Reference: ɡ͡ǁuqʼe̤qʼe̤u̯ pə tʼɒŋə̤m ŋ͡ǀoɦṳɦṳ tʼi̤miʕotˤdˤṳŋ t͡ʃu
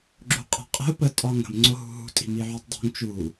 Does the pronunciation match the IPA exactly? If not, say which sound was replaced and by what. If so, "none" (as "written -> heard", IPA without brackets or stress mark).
none